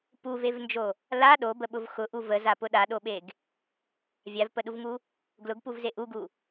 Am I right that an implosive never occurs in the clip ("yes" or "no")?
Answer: no